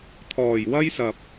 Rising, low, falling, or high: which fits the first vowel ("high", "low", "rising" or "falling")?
low